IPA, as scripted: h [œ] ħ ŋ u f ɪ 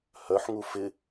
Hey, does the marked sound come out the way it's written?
yes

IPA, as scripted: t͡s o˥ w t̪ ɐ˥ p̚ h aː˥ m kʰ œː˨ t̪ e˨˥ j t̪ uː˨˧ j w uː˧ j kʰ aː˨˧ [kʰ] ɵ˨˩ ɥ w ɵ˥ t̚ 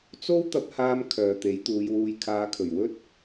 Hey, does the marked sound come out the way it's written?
yes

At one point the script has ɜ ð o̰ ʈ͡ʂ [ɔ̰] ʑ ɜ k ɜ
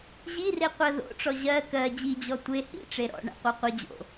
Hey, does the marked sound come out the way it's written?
no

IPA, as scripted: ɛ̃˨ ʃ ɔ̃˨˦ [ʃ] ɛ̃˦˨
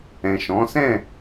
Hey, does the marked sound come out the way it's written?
no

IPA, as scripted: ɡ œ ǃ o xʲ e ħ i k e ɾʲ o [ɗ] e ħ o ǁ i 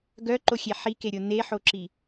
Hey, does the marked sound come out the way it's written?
no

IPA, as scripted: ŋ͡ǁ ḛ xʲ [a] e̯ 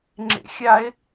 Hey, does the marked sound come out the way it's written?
yes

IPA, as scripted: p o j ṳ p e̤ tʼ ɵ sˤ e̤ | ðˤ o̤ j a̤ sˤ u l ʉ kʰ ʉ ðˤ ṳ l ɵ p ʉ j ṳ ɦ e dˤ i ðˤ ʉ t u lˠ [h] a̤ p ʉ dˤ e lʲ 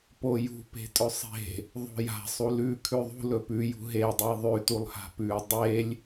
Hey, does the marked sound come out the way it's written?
yes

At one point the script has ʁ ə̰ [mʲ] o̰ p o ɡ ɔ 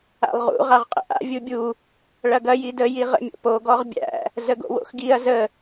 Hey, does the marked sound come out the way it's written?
yes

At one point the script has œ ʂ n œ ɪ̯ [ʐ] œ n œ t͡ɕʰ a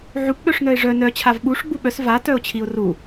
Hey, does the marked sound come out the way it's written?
yes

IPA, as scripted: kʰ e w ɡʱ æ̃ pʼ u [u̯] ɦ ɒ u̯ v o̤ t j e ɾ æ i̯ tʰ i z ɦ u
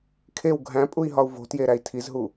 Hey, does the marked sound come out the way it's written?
no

